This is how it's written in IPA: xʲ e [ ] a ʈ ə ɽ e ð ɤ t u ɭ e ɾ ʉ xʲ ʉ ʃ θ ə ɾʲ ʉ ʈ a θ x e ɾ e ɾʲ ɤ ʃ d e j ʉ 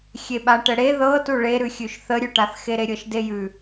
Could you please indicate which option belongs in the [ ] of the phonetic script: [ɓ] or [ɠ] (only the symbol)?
ɓ